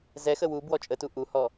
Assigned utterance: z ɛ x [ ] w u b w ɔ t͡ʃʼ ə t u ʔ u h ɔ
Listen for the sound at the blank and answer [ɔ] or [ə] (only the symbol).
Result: ə